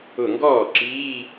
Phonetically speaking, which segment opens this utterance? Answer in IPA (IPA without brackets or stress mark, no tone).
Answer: ʊ